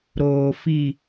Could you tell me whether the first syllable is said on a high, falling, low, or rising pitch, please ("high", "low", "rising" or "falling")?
low